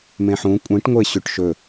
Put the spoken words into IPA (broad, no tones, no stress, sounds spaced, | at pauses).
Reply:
m ẽ ħ ũ kʷʼ ĩ ʈ ŋʷ e ɕ ʉ ʈ ʃ ɵ